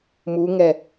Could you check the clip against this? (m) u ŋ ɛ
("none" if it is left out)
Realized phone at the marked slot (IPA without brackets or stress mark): m